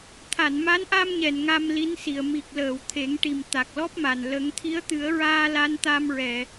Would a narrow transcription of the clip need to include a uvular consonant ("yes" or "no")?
no